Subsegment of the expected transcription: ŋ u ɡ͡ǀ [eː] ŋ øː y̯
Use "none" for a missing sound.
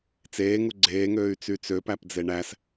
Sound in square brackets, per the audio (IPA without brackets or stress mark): eː